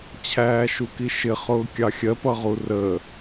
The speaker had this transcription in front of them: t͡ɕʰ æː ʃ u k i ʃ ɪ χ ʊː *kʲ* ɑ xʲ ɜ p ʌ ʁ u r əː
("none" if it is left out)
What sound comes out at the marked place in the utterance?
kʲ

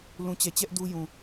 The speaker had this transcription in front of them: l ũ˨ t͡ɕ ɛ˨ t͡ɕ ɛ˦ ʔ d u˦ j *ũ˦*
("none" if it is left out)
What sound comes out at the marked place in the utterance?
ũ˨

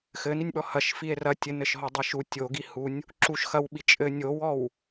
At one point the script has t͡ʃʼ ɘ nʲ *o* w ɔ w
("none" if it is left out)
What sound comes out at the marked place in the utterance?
o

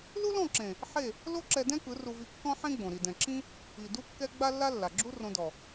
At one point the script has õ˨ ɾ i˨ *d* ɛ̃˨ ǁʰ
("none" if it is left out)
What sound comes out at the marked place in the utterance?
d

